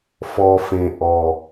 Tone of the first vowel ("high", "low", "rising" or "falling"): low